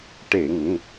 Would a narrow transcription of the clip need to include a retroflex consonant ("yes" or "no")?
yes